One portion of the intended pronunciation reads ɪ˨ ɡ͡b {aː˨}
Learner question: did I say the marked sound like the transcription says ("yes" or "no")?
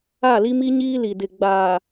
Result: yes